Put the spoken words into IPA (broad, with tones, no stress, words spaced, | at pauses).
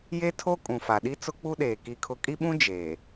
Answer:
je˦tʰo˦ kʼũ˨fa˨ɗi˦ t͡sʊ˦k͡pu˦ɗeː˨ ki˦kʰʊ˦ kʼi˦ɓũ˦ d͡ʒeː˨